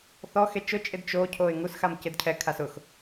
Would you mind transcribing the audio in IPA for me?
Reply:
θ ɔ x e t͡ʃ ʊ t͡ʃʼ ɪ d t͡ʃ o cʰ o ɪ̯ ŋ u s x a m c ɪ d cʰ ɛ kʰ a s ʊ x

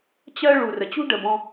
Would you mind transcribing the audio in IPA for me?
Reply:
t͡ɕ ɜ˧ ɭ u˨ r ə˨ t͡ɕ ṳ˦ ɖ ə˨ b ɔ̃˧

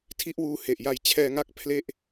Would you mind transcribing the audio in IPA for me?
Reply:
tʰ i˥˩ ʔ w uː˧ h e˨˩ ʔ j a˧ j t͡ɕʰ ɛː˧ ŋ a˦˥ k̚ pʰ l e˥˩ ʔ

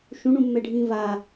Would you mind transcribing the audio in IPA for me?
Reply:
ʃ ũ ɳ ũ mː ɛ ɖʱ ĩː v a

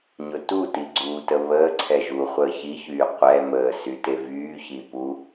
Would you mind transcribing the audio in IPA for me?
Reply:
ɲ ʊ t u t i ɡ͡ǀ uː t ə β əː ǀʰ ɛ ʒ uː χʷ əː ç i ç yː qʷ ɛ m əː s y t e v yː ç i p u

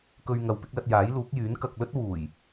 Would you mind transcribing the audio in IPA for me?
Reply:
k ɵ˧ ɥ ŋ ɐ˨ w p ɪ˨˥ k̚ l ɐ˧ t̚ j aː˨˥ j l uː˨˥ k̚ j yː˨˥ n k ɐ˨ k̚ l ɵ˥ t̚ w uː˨˩ j

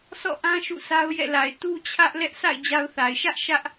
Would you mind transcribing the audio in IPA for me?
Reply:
s ɔ̰˦˨ ʔ ã˦ ʃ ṵ˦˨ s a˦ ʊ̯ j ɛ̰˦˨ l a˨ ɪ̯ t u˦ t͡ɕʰ ä˦ ʔ l ɛ˦ ʔ sʰ a̰˦˨ ɪ̯ d͡ʑ a˦ ʊ̯ θ a˨ ɪ̯ ʃ ä˦ ʔ ʃ ä˦ ʔ

